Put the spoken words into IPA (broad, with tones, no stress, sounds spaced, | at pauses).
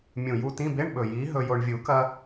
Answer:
mʲ ũ˨˩ j u˧ t ĩ˧˥˧ b e˧˥˧ ɳ ɓ ɵ˨˩ j i˨˥ ɦ ɵ˧ j o˧ ɳ vʲ u˨˩˦ k ɐ˧